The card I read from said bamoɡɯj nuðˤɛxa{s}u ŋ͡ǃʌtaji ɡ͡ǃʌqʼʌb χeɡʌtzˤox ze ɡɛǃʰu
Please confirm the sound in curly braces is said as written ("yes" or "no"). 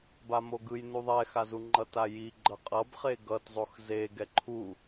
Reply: no